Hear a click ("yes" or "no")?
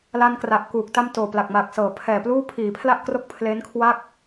no